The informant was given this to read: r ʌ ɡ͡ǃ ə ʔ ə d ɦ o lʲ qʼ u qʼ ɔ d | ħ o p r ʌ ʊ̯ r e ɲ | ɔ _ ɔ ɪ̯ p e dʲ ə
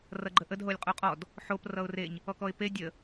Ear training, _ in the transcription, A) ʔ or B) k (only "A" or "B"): B